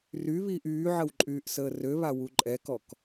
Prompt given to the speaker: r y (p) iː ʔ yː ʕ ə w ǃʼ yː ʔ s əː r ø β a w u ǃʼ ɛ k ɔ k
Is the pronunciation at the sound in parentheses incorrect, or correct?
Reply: incorrect